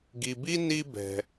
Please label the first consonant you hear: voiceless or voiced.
voiced